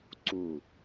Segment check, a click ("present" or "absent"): present